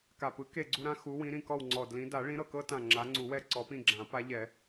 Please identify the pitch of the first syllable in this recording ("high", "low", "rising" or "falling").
low